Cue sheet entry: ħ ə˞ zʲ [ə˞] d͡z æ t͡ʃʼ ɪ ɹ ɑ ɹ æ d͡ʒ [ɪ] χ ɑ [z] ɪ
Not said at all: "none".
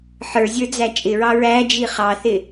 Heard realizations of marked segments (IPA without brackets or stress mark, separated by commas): ə˞, i, θ